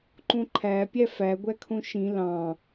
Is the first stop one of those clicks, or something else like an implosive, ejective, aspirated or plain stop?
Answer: click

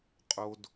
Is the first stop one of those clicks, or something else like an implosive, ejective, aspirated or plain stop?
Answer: ejective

